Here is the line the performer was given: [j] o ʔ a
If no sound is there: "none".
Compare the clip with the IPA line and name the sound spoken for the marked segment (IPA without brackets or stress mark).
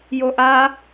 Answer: j